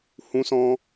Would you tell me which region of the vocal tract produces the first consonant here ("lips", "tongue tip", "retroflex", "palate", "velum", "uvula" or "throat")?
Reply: throat